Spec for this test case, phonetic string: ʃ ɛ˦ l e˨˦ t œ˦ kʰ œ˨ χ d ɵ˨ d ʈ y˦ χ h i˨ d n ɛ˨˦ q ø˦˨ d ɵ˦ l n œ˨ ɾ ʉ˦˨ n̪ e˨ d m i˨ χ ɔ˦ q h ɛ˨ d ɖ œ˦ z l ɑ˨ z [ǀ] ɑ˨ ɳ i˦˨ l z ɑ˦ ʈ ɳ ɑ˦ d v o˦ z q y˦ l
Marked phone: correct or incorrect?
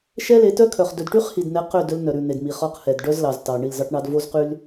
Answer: incorrect